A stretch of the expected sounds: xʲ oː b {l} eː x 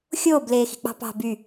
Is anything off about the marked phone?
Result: no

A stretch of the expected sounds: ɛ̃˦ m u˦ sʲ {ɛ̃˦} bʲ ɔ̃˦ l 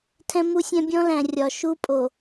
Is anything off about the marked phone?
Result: no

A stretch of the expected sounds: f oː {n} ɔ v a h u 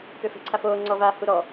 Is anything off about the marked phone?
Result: yes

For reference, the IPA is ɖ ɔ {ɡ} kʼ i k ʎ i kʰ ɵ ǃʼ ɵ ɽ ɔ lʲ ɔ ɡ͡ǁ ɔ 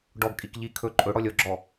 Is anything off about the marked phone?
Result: no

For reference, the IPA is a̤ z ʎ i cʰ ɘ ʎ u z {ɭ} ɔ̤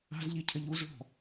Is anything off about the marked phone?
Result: no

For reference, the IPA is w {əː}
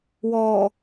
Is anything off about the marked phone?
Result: yes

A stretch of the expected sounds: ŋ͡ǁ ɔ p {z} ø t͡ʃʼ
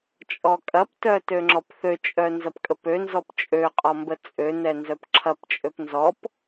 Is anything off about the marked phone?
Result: yes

